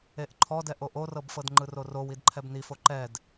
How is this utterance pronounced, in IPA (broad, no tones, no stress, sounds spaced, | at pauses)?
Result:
e ʔ ǃʰ ɔ d ɛ ʔ o ʔ o r ɤ b f ɤ d ŋ͡ǃ ɯ r o r o w i d ǃʰ ɛ b n i f o ǃ ɛ d